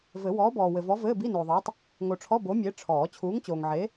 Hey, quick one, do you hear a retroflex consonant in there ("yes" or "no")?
yes